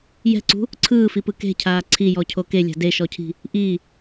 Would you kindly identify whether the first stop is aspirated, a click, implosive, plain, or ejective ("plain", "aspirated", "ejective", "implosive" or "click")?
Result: click